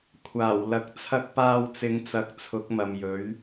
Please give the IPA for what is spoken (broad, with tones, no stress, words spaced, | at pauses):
kʷʰaː˨˩wlɐ˨˥k̚ t͡sʰɐ˧k̚paː˧wt͡sɪ˨˧ŋt͡sɐ˨˥k̚ t͡sʰʊ˨˥k̚mɐ˨mjɵ˨˥ɥ